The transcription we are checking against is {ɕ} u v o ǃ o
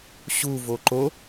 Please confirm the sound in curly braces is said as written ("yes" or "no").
yes